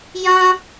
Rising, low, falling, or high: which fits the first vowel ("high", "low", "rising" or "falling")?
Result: high